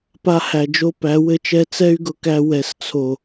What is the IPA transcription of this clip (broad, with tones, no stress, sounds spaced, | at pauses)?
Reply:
p a˧ h æ˨ d͡ʒ o˧ p æ˨˦ w ɘ˦ t͡ʃ ɛ˦ t͡s ɛ˦ y̯ ɡ ʊ˨ k æ˧ w ɛ˨ s t͡sʰ o˨